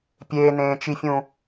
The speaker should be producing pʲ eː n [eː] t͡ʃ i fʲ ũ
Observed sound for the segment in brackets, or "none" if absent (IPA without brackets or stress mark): ẽː